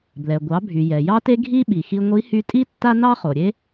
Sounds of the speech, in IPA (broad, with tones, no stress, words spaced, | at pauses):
blɛ˩ɡʷɑ˩˧bʱy˩ jɛ˩jɑ˥te˥ ɡʱi˥ɓi˩xi˧ ŋʷi˧˥hy˧˥tʼi˥ tːa˥nɑ˥χo˩ɾʲe˥